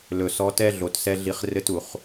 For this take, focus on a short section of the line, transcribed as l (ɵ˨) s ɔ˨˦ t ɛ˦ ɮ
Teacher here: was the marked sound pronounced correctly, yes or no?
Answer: yes